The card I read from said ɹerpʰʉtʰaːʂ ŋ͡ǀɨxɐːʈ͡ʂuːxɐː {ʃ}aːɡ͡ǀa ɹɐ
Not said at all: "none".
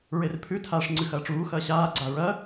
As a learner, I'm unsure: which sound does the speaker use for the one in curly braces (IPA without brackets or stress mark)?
ɕ